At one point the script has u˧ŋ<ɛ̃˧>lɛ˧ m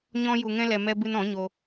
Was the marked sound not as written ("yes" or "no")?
yes